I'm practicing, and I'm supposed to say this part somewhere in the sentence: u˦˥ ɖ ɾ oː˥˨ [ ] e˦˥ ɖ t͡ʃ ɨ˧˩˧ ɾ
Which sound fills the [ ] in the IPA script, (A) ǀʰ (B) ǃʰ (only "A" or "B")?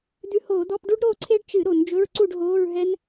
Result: A